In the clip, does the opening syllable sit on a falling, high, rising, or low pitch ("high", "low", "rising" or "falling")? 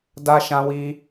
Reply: high